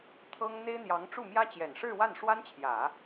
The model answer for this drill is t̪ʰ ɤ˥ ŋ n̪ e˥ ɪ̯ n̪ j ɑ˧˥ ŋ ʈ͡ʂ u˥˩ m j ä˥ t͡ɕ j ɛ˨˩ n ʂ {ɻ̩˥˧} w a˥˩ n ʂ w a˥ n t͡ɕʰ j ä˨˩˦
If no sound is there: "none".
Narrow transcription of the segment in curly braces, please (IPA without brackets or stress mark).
ɻ̩˥˧